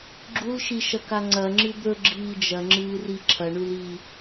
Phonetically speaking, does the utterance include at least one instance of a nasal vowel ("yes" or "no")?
no